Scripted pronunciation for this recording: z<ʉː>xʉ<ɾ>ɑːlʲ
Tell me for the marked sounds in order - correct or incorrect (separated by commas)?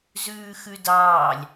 correct, incorrect